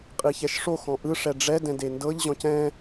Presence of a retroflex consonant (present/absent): present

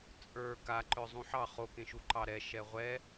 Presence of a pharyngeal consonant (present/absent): present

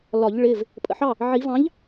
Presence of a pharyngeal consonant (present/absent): present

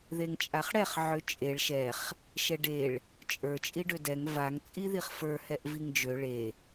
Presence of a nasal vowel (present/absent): absent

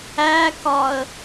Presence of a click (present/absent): absent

